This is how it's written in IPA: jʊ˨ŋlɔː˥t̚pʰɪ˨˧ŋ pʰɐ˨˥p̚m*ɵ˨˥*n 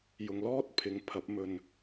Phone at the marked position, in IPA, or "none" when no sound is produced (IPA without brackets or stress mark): ɵ˧